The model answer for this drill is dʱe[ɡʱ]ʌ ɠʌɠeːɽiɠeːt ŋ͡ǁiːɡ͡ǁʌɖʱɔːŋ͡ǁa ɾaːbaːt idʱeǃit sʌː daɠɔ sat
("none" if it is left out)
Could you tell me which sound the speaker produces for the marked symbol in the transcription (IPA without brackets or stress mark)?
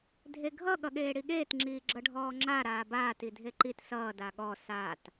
ɡʱ